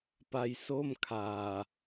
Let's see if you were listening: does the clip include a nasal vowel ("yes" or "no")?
no